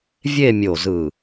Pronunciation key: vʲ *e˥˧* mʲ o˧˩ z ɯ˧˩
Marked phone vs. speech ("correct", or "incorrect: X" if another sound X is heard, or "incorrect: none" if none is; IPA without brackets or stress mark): correct